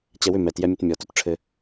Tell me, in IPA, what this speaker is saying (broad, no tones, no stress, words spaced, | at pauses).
t͡ɕɛwʏ mɛtjɛ mʲɘtmʲɔ tutʈ͡ʂʰɘ